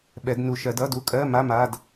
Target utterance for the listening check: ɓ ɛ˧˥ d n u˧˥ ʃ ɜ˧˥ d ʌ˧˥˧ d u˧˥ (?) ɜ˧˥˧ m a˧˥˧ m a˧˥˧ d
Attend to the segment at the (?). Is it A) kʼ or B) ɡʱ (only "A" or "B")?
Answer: A